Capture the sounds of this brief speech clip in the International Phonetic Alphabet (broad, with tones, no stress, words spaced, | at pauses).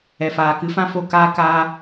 ɛ˨faː˨ kɨ˨˦fã˦fo˦˨kaː˦ kaː˦